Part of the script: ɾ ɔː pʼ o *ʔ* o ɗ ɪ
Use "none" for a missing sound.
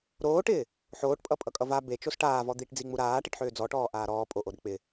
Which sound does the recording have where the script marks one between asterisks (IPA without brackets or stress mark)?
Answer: ʔ